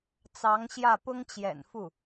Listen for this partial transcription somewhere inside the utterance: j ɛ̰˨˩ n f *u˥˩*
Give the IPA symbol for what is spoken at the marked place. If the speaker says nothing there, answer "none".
u˥˩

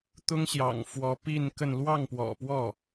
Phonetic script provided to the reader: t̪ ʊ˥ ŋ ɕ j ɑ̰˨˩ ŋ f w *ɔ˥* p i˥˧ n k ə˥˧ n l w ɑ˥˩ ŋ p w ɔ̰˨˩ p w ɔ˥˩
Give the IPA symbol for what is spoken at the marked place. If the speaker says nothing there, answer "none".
ɔ˧˥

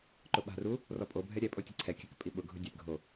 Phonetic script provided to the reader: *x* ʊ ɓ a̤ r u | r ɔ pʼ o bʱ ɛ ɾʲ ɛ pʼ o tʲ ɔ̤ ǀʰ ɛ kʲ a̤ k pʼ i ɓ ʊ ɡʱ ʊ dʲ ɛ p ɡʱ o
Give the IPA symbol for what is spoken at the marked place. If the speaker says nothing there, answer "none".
ǃ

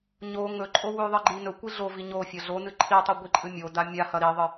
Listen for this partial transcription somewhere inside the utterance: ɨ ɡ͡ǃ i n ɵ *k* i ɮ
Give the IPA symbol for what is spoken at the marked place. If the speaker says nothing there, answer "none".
kʷ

